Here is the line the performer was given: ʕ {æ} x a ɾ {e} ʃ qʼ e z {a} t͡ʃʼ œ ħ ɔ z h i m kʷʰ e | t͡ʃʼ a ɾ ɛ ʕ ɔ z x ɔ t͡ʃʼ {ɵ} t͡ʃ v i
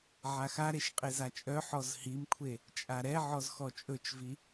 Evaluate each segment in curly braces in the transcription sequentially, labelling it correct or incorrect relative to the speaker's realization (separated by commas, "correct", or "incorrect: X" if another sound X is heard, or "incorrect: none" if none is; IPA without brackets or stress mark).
incorrect: a, correct, correct, correct